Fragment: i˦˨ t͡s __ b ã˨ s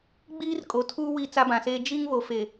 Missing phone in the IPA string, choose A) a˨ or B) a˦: B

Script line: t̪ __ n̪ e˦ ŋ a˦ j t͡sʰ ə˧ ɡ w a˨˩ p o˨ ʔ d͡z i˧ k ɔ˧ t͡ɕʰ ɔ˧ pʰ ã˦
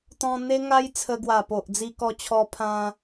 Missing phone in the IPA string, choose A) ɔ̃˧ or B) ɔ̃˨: A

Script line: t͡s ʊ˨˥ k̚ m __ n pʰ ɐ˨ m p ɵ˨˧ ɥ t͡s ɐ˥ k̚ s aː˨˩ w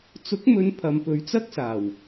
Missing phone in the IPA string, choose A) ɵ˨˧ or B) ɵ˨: A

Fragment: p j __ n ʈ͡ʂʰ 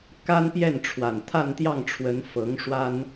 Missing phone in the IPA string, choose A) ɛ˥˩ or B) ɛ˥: A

